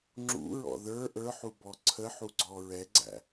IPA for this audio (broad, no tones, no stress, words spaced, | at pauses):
ŋ͡ǁṵɹɔ̰ ðə˞ ʔə˞ħubɔ ǀʰəħuɡ͡ǀɔ ɹɛɡ͡ǀæ̰